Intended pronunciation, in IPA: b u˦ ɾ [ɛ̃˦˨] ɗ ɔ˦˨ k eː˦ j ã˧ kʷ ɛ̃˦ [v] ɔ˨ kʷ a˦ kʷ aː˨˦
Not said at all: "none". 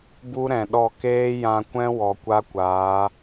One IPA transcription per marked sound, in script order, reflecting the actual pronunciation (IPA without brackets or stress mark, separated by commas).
ɛ̃˨, w